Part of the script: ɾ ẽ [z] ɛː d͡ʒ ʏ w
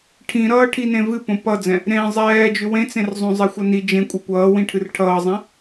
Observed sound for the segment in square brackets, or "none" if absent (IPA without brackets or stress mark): zˤ